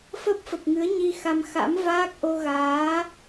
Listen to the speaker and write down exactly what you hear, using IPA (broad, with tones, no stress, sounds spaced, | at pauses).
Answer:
f ə˦˥ p̚ f ə˨˩ p̚ ŋ ɨ˨˦ ə̯ ɲ i˧ x a˧ m x a̰˧˥ m v aː˦˥ k̚ ʔ o˧ ɣ aː˨˦